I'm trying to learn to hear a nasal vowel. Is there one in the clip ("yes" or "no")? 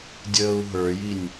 no